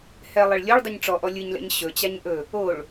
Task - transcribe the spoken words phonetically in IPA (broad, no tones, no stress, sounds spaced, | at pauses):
h ɛ lˠ e ɭ lʲ o ɭ dˤ ɯ ɲ ʈ͡ʂ ɔ ʔ ɔ lʲ ɯ ɲ l ɛ̰ ɲ ɕ ɵ t͡ɕ a ɲ ʔ ɵ | o ɭ